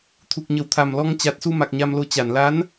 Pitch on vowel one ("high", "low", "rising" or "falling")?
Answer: low